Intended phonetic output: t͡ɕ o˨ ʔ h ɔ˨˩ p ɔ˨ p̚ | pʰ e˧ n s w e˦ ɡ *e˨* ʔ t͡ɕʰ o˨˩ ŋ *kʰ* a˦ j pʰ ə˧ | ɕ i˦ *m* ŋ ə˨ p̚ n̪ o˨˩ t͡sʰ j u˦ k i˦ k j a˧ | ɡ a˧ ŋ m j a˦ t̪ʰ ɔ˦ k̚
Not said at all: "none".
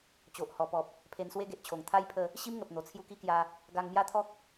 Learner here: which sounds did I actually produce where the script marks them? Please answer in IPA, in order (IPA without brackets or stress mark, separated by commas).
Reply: e˨, t̪ʰ, m